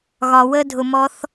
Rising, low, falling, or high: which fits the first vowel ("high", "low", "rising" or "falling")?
low